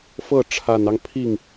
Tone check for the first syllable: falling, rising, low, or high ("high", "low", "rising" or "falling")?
falling